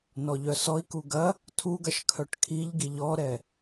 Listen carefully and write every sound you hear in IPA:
n ɔ ʎ œ s ɔ i̯ k u ɡ ɐ | tʰ u ɡ ɐ ʃ kʰ œ ʈ kʰ i ʎ ɡ i ʎ ɔ ɾ ɛ

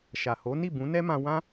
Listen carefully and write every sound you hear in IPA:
ʃ a˨ h o˨˦ n i˦˨ b ũ˨˦ n ɛ˦ m ã˧ w ã˦

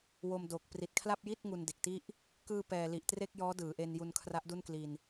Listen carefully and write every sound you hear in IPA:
w o˧ m d o˨˩ k̚ p r i˨˩ t̚ kʰ l a˥˩ p̚ j i˥˩ t̚ ŋ u˧ n d e˨˩ k̚ t i˥˩ ʔ | k ɯː˧ p ɛː˨˩ l i˨˩ ʔ t r e˥˩ k̚ j ɔː˦˥ d ɯː˩˦ ʔ e˧ n j u˧ n kʰ r a˦˥ ʔ d u˥˩ n k l i˧ n

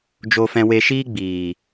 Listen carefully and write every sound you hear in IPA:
d͡ʒ o˧ f ɛ̃˧ w e˧ ʃ iː˦ ɡ͡b iː˨

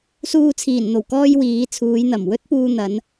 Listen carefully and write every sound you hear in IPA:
s uː˧ t͡sʰ iː˨˩ n n̪ o˨˩ w k ɔː˧ j w iː˨˧ t͡sʰ uː˨˧ j n̪ ɐ˨˩ m w ɵ˥ t̚ p uː˧ n̪ ɐ˨˧ n

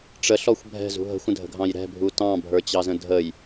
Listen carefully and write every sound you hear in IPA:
ʈ͡ʂ ə ɬ ɔ xʷ bʱ ɛ̤ z ṳ ɦ ə̤ xʷ ə̃ dʱ ə̤ ɡʱ ɑ̃ j ɾ ɛ̤ bʱ u t ɑ̃ bʱ ə˞ t͡ɕ ɑ z ə̃ dʱ ə j

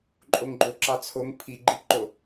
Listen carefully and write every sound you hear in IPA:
ǃʼ o ŋ ɡ͡ǃ o ǁ ɑ t͡sʰ o ŋ pʰ i ɡ͡ǃ i p ǃ o

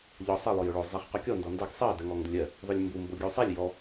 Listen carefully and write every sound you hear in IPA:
ʎ ɔ sˤ ɜ lˠ ʊ j ʊ ɭ o zˤ e χ q ɔ kʲ ɔ n d ɔ n d ɜ ɡ sˤ ɜ d ɜ ŋ ɔ ŋ d ʊ lʲ ɜ | ðˤ ʊ lʲ m b u m b o ɡʲ u sˤ e lʲ j ɔ

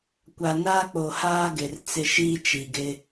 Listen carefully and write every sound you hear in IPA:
kʷ a˨ n aː˦ k͡p o˨ h aː˦ ɡ ɪ˨ r t͡s ɪ˦˨ ʃ iː˦ t͡ʃ i˨ ɡ ɪ˦

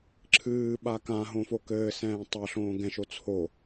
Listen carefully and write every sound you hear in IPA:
ǁʰ ɨː ɓ a k ã ɦ õ f o k ɘː s ɛ̃ː tˤ ɐ ɬ õː ɡ ɛ̃ ʃ o t͡sʰ o

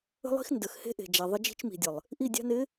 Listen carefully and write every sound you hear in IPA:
ə̤˦ lˠ i̤˦ x n d ə˨ x h e̤˦ ʔ e̤˨ d͡ʒ a˨ ðˤ ə˦ d͡ʒ i̤˦ t͡ʃ m i̤˨ dʲ ə˨ lˠ | ʔ i˦˨ dʲ a̤˦ n ɪ˨˦

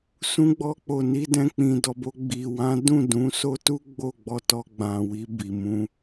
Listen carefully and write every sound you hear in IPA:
s ũ˧ ɡ͡b ɔ˧ k͡p o˨ n i˧ d ɛ̃˧ k͡p ĩ˨ d ɔ˨ b o˧ ɡ͡b i˨ w ã˨˦ d ũ˦˨ d ũ˨˦ s o˦ t u˦ ɡ͡b o˦˨ ɡ͡b ɔ˧ t ɔ˧ ɡ͡b ã˨ w i˧ b i˨ m ũ˧

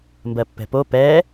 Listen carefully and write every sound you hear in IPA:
m b ɜ pː ɛ̤ p o p ɛ

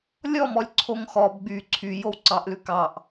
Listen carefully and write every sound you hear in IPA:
lʲ ɔ m ɔ lʲ ǀʰ o ŋ x ɔ b ɡ͡b y ǀʰ y j o w ǀ ɑ ʔ l ʉ k ɑ ʔ

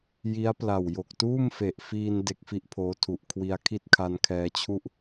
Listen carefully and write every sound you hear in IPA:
j i˦˥ a̯ p l a˨˩ w j o˨˩ k̚ t uː˥˩ m f e˨˩ ʔ f iː˧ n d e˦˥ k̚ f i˦˥ ʔ pʰ oː˦˥ tʰ u˨˩ ʔ kʰ w i˧ a̯ kʰ i˥˩ t̚ kʰ a˧ n kʰ ɛː˧ t͡ɕʰ u˥˩ ʔ

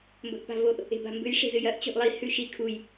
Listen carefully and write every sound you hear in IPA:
m b ɵ ʔ p a̤ v o ʔ | e̤ b a̤ m b ɨ j ʂ e̤ z ɨ j ɐ ʔ t͡ɕ o̤ ʔ lˠ i h ʉ ʃ i kʰ u j

